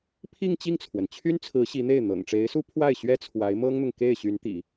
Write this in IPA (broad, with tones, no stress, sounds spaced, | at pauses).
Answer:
pʰ i˥˧ ŋ t͡ɕ i˥˩ ŋ t͡sʰ w ə˩ n t͡ɕʰ y˥ n t͡sʰ ɹ̩˧˥ ɕ i˧˥ n̪ e˥˩ ɪ̯ n̪ ɤ̰˨˩ ŋ ʈ͡ʂ e˧˥ ɪ̯ s u˥ pʰ w a˥˩ ɪ̯ ɕ ɥ ɛ˥ t͡sʰ w a˧˥ ɪ̯ m ɤ˥ ŋ n̪ ʊ˨ ŋ k e˥˩ ɪ̯ ɕ y˧˥ n t̪ ḭ˨˩˦